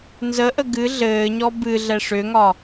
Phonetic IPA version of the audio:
n z ə ʔ ə ɡ ɨ ɮ ɘː ɲ ɔ b ɨ ɮ ɛ ʂ ʏ ŋ ɒ

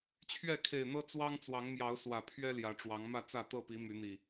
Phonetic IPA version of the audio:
t͡ɕʰ ɥ ɛ˥˨ kʰ e˨˩ ɪ̯ n̪ ɤ˦ t͡s w ɑ˦ ŋ t͡s w ɑ˨˦ ŋ m j ɑ˨˦ ʊ̯ s w ä˨˩ pʰ ɥ ɛ˦ l j ä˨˦ ʈ͡ʂ w ɑ˨˦ ŋ m ä˥˨ t͡s ä˥˨ t̪ ɤ˥˨ p i˨˦ m y˨˦ n̪ i˨˩

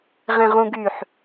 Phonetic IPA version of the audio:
ʁ ẽ ʁ ũ ɡ y ħ

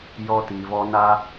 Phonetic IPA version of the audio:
j ɔ˧ t i˨ v ɔ˧ n a˧

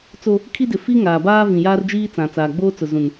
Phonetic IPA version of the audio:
t͡s o˦ | kʰ i˦ d ɪ˨ f i˦ ŋ aː˨ b aː˦ v ĩ˨ j aː˦ r d͡ʒ iː˦ t͡s ã˨ t͡s aː˨ ɡ͡b oː˦ t͡s ʊ˨ z ũ˨ n

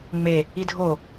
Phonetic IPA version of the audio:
ŋ͡m e | i dʱ o

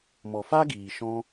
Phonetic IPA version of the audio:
m ɔ˨ f a˦ ɡ iː˨ ʃ ɔ̃˧

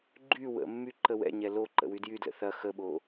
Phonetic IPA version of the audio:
ɡ͡ǃ y w ə̰ mː y ǃ ə w ɛ̰ ɲ ɛ l o ǃ ə̰ w y d j y d l ə̰ θ ɐ x ə ɓ o

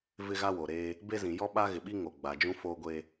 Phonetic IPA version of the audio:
v ɪ˦ ɣ a˦ w oː˨ ɾ eː˦ | b e˦ z ĩ˨ j ɔ˦ ɓ a˦ ɣ ɪ˨ ɓ i˦ ŋ o˨ ɡ͡b a˨ d͡ʒ ũ˦ f oː˦ ɡʷ e˦

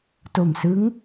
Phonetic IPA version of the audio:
t o˨˩ m s ɯ˦˥ ŋ

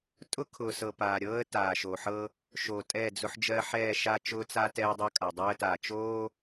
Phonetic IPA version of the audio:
tʼ ʊ˦ kʰ ʊː˨ s ɤ˨ p aː˨ ɾʲ ɤː˦ ə̯ t aː˨ ʃ o˨ ħ ɤ˦ | ʃ o˨ tʼ ɛ˦˨ d͡z ʊ˦ ħ d͡ʒ ɜ˦ ħ ɛː˦˨ ʃ a˦ t͡ʃ ʊː˦ t͡s a˦ t ɛː˦ ə̯ dˤ o˦ kʼ a˨ dˤ øː˦ ə̯ t aː˨ t͡ʃ oː˦

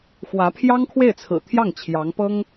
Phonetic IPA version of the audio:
x w ä˧˥ pʰ j ɑ˥ ŋ kʰ w e˥˩ ɪ̯ t͡sʰ ɹ̩˨˩ t̪ʰ j ɑ˥˩ ŋ t͡ɕʰ j ɑ˧˥ ŋ p ɤ˥ ŋ

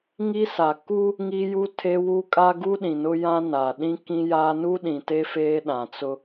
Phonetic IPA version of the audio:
ŋ i˦ s a˨ k u˦ | ŋ i˦ j u˦ tʰ e˦ w u˦ kʼ a˦ ɡ u˦ ɗ ĩ˨ n ʊ˦ j ã˦ n a˨ ɗ ĩ˦ k ĩ˦ j a˦ n u˦ ɗ ĩ˨ t e˦ f eː˦ ɗ ã˨ t͡s ʊ˦

